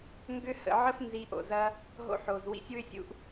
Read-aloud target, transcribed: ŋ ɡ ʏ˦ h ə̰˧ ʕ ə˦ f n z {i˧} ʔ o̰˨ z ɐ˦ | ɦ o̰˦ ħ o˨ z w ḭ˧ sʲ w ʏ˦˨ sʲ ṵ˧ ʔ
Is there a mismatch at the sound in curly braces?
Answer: no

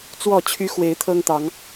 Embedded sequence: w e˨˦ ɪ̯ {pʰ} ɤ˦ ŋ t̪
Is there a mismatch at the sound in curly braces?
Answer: yes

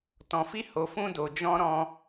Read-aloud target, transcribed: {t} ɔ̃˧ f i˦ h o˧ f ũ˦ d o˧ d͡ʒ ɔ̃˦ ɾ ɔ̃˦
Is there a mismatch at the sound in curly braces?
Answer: no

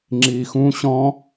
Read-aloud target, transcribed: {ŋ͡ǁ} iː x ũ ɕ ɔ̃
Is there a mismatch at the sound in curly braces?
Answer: no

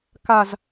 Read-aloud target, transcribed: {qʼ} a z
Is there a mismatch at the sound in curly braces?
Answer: yes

